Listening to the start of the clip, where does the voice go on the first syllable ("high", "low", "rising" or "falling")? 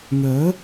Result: rising